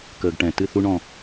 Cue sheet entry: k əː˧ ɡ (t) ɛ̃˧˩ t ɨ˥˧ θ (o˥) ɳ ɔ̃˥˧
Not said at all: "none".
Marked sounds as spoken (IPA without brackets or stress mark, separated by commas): ʈ, u˥